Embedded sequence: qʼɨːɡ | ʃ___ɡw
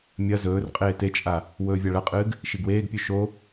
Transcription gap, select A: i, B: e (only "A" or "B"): A